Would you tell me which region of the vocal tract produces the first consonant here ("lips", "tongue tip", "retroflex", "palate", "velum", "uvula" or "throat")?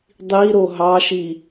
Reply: tongue tip